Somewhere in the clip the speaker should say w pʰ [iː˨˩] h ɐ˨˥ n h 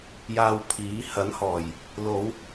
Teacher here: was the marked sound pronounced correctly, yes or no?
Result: no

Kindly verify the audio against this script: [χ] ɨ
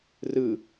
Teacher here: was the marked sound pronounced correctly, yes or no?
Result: no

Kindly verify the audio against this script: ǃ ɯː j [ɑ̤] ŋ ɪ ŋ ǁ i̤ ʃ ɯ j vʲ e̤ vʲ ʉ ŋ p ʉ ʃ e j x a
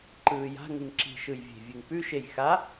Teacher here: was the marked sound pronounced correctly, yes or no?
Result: no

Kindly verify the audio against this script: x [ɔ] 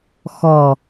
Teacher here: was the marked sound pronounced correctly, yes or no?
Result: yes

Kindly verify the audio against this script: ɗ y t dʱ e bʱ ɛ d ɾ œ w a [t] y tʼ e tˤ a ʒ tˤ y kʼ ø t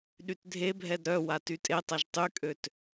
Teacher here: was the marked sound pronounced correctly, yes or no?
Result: yes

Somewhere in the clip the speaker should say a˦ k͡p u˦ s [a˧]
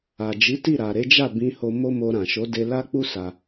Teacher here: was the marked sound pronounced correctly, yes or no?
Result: yes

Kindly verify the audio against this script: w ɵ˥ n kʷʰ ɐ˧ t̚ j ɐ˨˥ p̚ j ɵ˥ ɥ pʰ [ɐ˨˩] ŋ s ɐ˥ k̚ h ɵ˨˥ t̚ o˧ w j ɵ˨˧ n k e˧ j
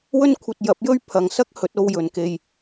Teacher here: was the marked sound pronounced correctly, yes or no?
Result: no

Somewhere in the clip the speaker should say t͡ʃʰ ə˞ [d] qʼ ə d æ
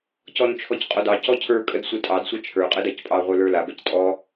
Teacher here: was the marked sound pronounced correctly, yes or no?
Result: no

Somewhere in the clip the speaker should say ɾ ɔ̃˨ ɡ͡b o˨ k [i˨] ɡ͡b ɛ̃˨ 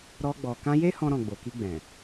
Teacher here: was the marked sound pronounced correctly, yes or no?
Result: no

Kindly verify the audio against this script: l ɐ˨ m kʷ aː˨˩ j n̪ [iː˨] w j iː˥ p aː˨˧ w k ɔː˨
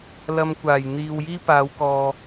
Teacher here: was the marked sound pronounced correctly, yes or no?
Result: yes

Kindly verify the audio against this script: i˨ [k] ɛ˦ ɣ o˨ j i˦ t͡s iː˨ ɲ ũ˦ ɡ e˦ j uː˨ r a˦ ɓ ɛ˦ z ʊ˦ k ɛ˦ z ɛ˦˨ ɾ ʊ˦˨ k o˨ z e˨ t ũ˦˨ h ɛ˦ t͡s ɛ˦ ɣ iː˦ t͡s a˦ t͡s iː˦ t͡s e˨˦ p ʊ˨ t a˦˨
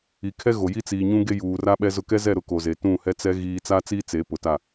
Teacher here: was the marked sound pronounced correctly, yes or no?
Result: no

